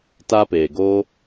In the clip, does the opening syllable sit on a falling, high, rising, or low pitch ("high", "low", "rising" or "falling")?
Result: high